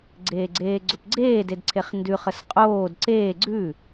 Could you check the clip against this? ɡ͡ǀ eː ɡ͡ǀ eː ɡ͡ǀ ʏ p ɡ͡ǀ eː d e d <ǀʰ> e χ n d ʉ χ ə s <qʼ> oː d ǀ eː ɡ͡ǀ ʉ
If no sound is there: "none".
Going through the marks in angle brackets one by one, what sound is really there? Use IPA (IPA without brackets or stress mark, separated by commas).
ǀʰ, qʼ